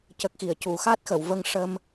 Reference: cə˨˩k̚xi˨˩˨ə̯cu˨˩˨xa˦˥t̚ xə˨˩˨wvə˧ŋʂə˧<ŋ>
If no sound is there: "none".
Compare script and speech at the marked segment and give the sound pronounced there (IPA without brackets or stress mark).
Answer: m